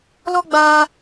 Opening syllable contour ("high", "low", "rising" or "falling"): high